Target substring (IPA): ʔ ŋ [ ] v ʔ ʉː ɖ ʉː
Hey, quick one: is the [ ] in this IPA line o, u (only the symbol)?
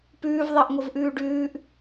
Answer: o